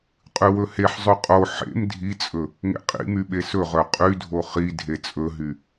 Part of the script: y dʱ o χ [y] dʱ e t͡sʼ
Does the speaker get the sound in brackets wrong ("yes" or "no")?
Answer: yes